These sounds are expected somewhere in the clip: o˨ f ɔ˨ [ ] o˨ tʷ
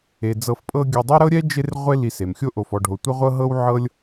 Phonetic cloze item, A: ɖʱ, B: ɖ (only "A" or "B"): A